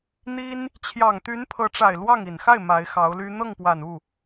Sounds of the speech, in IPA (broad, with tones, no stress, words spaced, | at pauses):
n̪i˥n | t͡ɕʰjɑ˨˩ŋt̪y˧˥n pʰɤ˧˥ʈ͡ʂa˨˩ɪ̯lwɑ˥˩ŋ i˨˩nxa˥˩ɪ̯ ma˧˥ɪ̯xɑ˧˥ʊ̯ly˥ n̪ɤ˥˩ŋpwa˨˩n u˥˩